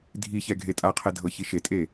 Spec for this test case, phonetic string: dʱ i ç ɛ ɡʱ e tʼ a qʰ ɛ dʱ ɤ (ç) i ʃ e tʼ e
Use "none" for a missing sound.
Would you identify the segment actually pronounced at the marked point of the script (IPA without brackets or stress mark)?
ç